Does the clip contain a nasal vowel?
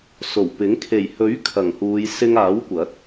no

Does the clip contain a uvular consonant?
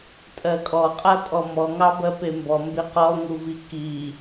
yes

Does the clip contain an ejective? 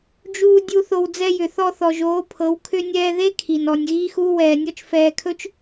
no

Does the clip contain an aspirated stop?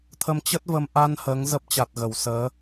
yes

